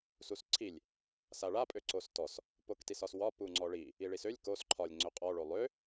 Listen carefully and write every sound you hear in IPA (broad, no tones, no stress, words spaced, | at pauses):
susǀʰilʲ | saɭa pʼøǀostɔs | poktisɒswɒ puŋ͡ǀɔɭi | iɭisølʲ kos ǃʰɒlʲ ŋ͡ǀøqʼɔ ɭolˠø